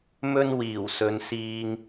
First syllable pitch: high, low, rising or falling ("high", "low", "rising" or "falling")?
high